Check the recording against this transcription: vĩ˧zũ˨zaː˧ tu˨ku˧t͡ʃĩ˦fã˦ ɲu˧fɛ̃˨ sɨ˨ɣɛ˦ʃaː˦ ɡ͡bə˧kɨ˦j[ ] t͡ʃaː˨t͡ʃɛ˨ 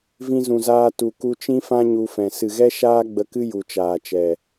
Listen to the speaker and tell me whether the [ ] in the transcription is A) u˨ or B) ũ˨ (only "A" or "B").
A